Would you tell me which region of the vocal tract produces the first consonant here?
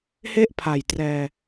throat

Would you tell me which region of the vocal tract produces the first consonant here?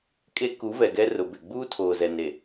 velum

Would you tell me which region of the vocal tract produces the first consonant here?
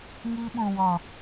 velum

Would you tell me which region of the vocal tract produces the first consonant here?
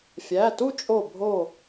lips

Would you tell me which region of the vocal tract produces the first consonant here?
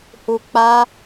throat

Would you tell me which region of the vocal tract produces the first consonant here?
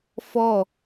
lips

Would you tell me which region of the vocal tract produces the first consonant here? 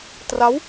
tongue tip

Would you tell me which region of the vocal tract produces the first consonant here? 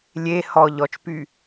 tongue tip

